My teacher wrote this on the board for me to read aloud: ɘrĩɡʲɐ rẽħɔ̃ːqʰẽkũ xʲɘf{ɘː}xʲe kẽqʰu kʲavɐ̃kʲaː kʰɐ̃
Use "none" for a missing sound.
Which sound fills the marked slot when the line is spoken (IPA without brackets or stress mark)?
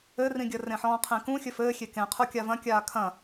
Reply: ɘː